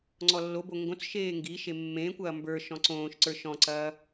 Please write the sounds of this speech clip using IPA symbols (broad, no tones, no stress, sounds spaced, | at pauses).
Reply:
ŋ͡ǀ ɔ lː o b o ŋ ɡ õ t͡s ʃ eː ŋ ɡ i ʃ e mː ẽː kʷ ɐː m b ə˞ ʃ ɔ̃ ǀ õː ʃ ǀ ə˞ ʃ ɔ̃ ǀ ɐː